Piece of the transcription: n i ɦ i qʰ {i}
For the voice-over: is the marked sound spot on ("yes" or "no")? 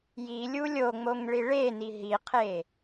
no